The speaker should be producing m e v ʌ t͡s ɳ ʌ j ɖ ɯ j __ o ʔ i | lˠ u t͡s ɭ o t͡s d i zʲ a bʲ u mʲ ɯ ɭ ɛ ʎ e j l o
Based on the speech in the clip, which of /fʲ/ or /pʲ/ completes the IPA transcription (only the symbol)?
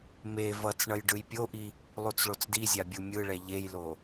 pʲ